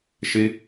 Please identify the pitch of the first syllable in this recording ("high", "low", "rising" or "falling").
high